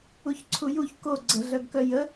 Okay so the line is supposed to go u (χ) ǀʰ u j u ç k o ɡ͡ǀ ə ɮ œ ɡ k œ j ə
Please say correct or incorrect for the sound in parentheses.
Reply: incorrect